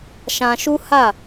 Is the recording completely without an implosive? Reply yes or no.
yes